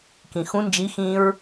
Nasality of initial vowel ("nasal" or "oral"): nasal